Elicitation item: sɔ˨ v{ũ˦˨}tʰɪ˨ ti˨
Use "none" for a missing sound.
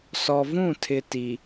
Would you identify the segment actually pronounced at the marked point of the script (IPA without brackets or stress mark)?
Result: ũ˦˨